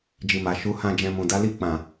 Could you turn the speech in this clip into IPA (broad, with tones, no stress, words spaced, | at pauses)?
d͡ʒi˨ ma˨ ʃu˨˦hã˧ d͡ʒɛ̃˨ mũ˨da˨˦ li˧k͡pã˨